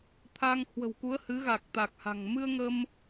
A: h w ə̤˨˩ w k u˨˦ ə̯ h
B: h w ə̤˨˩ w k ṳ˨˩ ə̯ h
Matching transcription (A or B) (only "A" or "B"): A